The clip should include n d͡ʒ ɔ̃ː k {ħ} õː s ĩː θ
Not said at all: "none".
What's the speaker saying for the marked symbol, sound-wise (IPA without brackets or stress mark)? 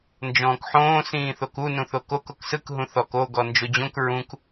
ħ